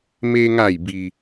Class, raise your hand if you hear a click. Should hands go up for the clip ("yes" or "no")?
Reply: no